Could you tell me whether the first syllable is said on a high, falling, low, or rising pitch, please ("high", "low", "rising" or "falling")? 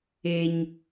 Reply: low